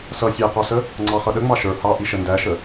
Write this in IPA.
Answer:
sʌ sʲæqɔsə | ŋ͡ǀɑχʌɗə ŋ͡mɑʃə˞ hɑʔiʃə ndæʃə

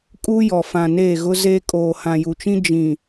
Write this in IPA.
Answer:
kʼuː˦jɔ˨ fã˨neː˦˨ɣʊ˦zeː˦ kʼoː˨hã˨ju˨t͡ʃĩ˦ d͡ʒĩ˨

